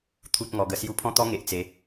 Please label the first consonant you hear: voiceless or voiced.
voiceless